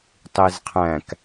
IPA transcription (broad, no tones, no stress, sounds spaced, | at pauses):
tˤ i z qʰ æ̃ k